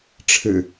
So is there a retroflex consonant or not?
yes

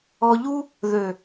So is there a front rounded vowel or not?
yes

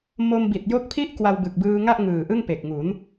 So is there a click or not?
no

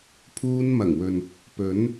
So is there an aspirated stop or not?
yes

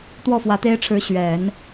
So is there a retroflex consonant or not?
yes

